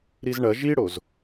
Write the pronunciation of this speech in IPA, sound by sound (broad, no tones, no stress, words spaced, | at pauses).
ɾizɳɐ ʒiɽoz